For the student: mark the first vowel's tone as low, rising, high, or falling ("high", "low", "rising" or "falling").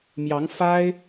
rising